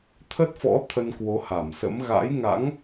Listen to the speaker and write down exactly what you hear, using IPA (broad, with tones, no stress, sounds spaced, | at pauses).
t̪ʰ ə˦˥ t̚ f ɔ̰˧˥ t̪ʰ ə˧ n k w o˨˦ h a˧˩ m s ə̰˧˥ m ɣ a̰˧˥ j ŋ a̰˧˥ ŋ